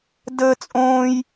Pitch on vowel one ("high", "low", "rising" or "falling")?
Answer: high